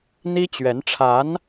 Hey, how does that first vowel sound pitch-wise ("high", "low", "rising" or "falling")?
high